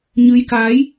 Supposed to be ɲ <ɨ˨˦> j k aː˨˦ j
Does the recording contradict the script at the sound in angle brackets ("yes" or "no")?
no